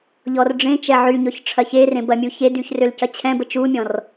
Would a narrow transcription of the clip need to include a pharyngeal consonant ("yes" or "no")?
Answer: yes